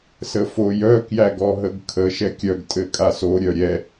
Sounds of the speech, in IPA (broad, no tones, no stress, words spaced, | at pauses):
səfojœ kjæɡɔɦəɡkʰə ʃɛkʲœɡ tʼɘkʼaso ɾʲœɾʲɛ